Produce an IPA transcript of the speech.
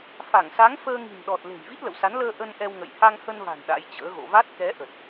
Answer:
f a˧˩ ŋ s a˨˦ ŋ f əː˧ ŋ i̤˨˩ n ɗ ɔ˨˩ t̚ l e̤˨˩ j v i˦˥ t̚ l ə̰˧˨ w s a˨˦ n l əː˧ ʔ ə˧ n ʔ ɛ˧ w ŋ ə̰˧˨ j h a˧ ŋ h ə˧ n v a̤˨˩ n ɗ a̰˧˥ j t͡ɕ ə̰ː˧˥ ɣ o̰˧˨ v a˦˥ t̚ k ɛ˨˦ ʔ ə˨˩ t̚

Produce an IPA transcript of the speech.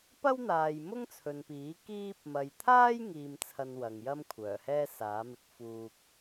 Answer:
p ɐ˥ w n̪ aː˨ j m ʊ˥ ŋ t͡sʰ ɵ˨ n p iː˨˥ k iː˧ p̚ m ɐ˨ j t̪ʰ aː˥ j ŋ iː˧ m t͡sʰ ɐ˧ n w ɐ˨ ŋ j ɐ˥ m kʷʰ œː˨˩ h ɛː˥ s aː˨˥ m ɪ˧ k̚ f uː˨ k̚

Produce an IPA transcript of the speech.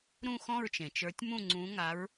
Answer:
ɾ ũ˥˨ x ɔ̃˥˨ ɹ t͡ʃ ẽ˩ t͡ʃ ə˞˨˦ tʲ m ũ˥˨ ŋ͡ǀ ũ˨˦ ŋ a˨˦ ɹ

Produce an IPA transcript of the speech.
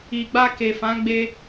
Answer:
i˨ ɡ͡b a˧ k e˨ f ã˨˦ ɡ͡b e˧

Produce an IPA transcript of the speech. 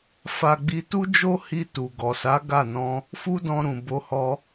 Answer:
f a˧ ɡ͡b i˧ t u˦ d͡ʒ o˦ h i˧ t u˨ ɡ ɔ˨ s a˨˦ ɡ a˦˨ n ɔ̃˧ | f u˦ d ɔ̃˧ ɾ ũ˨ b o˧ h ɔ˧

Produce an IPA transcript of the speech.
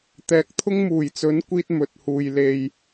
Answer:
t̪ ɛː˨˥ k̚ t̪ʰ ʊ˥ ŋ m uː˨˩ j t͡s ɵ˨˥ n kʷ iː˧ t̚ m ɵ˨ t̚ h uː˨ j l e˨ j

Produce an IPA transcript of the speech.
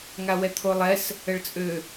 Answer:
ŋ a w ɛ t̪ʰ o lˠ ɛ s | ə ɭ t͡sʼ ø

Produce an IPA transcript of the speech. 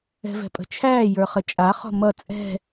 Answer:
ɛ̤ v ɛ̤ pʼ ə̤ t͡ʃʰ æː j ə˞ χ ə t͡ʃʼ a χ ɔ̤ m ʌ t͡sʼ ɛ̤

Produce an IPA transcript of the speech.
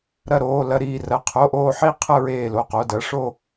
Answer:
ɾ ɐ˥˧ ɾ oː˧˥˧ l ɐ˥˧ ɾ iː˥˧ r ɐ˧˥˧ qʰ o˧˥˧ ʔ oː˥˧ ħ i˥˧ qʰ ə˥˧ ɹ eː˥˧ l o˧˥˧ q o˧˥˧ d ɐ˧˥˧ ʂ o˥˧

